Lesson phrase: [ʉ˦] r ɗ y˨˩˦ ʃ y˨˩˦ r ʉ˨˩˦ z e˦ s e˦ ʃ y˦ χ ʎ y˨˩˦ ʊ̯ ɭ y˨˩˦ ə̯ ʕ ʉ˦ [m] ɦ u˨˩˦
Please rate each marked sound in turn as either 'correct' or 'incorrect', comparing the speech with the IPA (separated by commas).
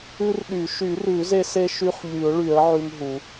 correct, correct